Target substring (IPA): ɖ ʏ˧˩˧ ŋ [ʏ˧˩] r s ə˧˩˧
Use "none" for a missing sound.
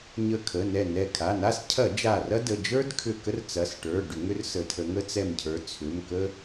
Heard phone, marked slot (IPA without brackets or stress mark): ʏ˥